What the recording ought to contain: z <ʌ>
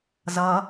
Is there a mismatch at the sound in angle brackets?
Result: no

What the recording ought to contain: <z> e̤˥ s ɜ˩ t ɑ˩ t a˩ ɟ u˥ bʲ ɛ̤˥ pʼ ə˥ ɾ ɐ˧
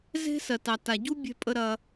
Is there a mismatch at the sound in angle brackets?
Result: no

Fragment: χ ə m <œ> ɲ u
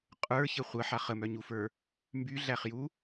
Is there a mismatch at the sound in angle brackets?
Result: no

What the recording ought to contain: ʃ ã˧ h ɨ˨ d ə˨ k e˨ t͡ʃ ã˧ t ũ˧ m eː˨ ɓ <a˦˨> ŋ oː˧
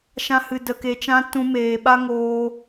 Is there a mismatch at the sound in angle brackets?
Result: yes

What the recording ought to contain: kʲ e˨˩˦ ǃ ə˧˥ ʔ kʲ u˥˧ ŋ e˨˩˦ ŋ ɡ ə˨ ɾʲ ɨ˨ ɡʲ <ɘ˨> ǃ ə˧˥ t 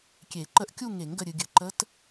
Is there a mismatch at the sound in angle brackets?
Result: no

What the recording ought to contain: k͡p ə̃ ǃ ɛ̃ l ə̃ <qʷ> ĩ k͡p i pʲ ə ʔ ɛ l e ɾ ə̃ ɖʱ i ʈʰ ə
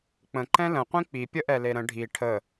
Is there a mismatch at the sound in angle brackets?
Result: no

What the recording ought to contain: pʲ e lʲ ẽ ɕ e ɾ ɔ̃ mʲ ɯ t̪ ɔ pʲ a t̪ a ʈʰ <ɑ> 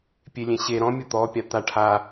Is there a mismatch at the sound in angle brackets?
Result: yes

